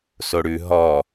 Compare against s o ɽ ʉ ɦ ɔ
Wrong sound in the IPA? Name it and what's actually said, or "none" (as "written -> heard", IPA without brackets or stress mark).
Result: none